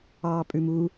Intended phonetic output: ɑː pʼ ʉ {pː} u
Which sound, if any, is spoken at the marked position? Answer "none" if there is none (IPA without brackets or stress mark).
m